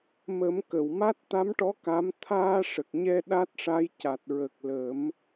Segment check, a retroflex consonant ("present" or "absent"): present